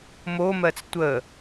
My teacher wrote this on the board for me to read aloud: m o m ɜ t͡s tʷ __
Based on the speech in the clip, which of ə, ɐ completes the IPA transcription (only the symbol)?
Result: ə